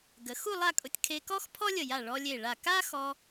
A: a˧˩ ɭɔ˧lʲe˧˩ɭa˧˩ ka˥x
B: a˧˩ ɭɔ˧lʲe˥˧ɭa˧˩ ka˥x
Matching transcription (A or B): A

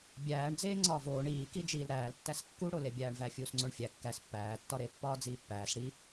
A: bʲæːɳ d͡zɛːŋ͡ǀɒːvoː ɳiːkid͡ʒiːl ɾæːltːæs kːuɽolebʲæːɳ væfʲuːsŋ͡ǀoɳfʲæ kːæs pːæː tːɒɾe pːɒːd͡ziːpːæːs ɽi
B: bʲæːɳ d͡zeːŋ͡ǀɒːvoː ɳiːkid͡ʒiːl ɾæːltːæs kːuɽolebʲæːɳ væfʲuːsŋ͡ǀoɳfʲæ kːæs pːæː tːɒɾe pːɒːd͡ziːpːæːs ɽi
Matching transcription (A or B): B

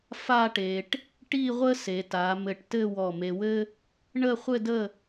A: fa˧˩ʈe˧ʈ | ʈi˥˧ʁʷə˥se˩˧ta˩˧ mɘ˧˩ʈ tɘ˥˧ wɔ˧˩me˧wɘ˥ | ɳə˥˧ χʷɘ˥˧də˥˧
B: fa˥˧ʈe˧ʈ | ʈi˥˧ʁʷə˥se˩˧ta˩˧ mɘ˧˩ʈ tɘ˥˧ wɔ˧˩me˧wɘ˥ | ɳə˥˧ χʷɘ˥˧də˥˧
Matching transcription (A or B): B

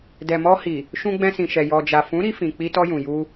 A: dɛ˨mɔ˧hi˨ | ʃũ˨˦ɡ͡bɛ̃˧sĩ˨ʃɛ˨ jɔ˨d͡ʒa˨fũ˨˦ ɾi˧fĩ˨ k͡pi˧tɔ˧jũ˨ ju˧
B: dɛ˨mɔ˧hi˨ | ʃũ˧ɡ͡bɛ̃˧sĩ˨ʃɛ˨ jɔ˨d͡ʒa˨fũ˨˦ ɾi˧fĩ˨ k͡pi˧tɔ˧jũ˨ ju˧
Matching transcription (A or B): B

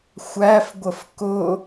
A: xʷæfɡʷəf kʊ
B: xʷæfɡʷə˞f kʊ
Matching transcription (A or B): A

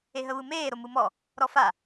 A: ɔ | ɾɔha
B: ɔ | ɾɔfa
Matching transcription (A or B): B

